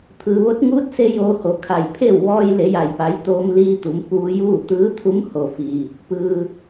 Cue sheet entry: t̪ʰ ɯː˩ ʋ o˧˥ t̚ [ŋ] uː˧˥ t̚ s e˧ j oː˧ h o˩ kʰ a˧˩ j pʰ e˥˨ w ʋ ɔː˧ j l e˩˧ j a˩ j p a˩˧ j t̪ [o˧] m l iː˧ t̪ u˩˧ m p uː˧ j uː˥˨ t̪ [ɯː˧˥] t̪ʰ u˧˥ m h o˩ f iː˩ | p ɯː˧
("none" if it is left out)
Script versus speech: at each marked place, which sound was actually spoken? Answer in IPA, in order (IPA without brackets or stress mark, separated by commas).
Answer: ŋ, oː˧, ɯː˧˥